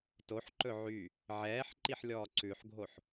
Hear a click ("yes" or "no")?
yes